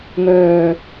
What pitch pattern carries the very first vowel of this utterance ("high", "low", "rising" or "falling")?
low